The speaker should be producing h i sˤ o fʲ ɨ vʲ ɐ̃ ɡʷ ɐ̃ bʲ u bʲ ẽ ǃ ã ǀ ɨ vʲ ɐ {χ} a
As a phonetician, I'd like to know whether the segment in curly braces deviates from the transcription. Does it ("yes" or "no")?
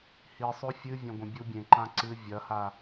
yes